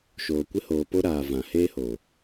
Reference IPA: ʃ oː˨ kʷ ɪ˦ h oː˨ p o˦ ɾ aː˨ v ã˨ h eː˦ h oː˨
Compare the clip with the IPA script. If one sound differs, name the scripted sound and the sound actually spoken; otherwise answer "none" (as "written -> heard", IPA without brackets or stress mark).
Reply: none